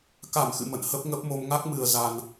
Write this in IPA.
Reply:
k a˧˩ m x ɨ̰˧˨ m ə̰˧˨ n h ə˦˥ p̚ ŋ ə˦˥ p̚ m o˧ m ŋ a˦˥ k̚ m ɨ˨˩ ə̯ z a˨˩ n

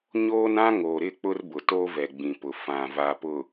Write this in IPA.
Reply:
ɲ oː˦ n ã˦ ŋ o˨ ɾ ɪ˦˨ k͡p ʊ˦ r b ʊ˨ t o˦ v ɛ˨ ɡ͡b ĩ˨ p ʊ˨ f ã˨ v a˨ p ʊ˨

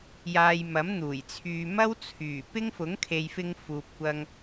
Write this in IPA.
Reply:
j aː˧ j m ɐ˨˥ m n̪ uː˨˩ j t͡sʰ yː˧ m ɐ˥ w t͡sʰ yː˨˩ p ɪ˥ ŋ f ʊ˨˥ ŋ kʰ e˨ j f ɪ˧ ŋ f uː˨ p̚ kʷ ɐ˧ ŋ

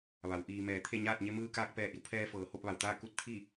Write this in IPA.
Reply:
ʋ a˩˧ w ʔ iː˩ m ɛː˩ t̪ʰ e˥˨ ɲ aː˥˨ t̚ ɲ e˧ m ɯː˧ k aː˧ k̚ p ɛː˧˩ ʔ i˩˧ w pʰ ɛː˧ f ɤː˩ h o˥˨ p̚ ʋ a˩ w t̪ aː˥˨ k u˧˥ t̚ t̪ʰ i˥˨

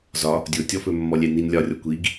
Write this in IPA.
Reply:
z ɒ | dʲ ʊ tʲ ɔ f ɵ mː ɔ lʲ ɛ n i n lʲ ɒ rʲ ɔ kʷ i ɡ

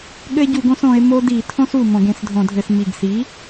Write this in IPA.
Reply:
ɠ ɘ˦ e̯ ɟ u˧˩˧ ɡ õ˩˥ s õ˩˧ e̯ m o˦ d i˧˩˧ tʰ õ˦ s u˨˩ m õ˧˩˧ ɡ ẽ˩˧ s dʱ õ˧˩˧ dʱ ɘ˧˩˧ s m i˨˩ ɡ s i˩˥

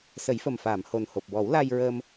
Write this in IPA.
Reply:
s ə˨˩˦ j f ə˨˩ m f aː˨˩˨ m h o˨˩ n h o˨˩ p̚ w ɔ˨˩˦ w l a˧ j ɹ əː˧ m

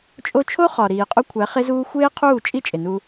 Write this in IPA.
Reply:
t͡ʃʼ o˦ t͡ʃʰ o˦ χ ɒ˨ ɾ iː˨ qʼ u˦ kʷʰ æ˨˦ χ e˦ z uː˦ xʷ eː˦ qʰ uː˦˨ t͡ʃʼ i˦ t͡ʃʼ e˨ n u˦

